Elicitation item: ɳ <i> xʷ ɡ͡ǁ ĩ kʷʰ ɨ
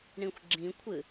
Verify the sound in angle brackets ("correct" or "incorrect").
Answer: incorrect